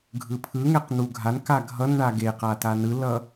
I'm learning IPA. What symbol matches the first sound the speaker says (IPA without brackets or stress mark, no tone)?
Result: ɡʱ